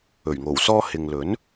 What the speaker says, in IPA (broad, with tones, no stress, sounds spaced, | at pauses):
ɵ˨˩ ɥ ŋ o˨˩ w s ɔː˥ h ɪ˨ ŋ l ɵ˨˥ n